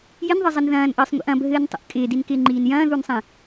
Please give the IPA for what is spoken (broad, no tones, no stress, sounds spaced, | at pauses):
j ɪ n ðˤ ɪ zˤ ɘ n ð ɐ̃ː n ʔ ɘː sˤ ŋʷ ḭ ʔ ɐ̃ bʱ ɘː n tˤ ə̰ ʔ kʼ ɪː d i n k ɪː ŋ͡ǃ iː n j ɐ̃ː ð u n sˤ ĩ